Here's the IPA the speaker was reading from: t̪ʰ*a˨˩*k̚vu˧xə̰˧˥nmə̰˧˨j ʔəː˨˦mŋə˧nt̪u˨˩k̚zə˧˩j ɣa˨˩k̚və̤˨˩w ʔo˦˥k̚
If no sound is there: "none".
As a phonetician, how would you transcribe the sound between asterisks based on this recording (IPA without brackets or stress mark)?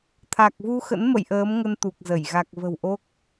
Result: a˨˩